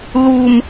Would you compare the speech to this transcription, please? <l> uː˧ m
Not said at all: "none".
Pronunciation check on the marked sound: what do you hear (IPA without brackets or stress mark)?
l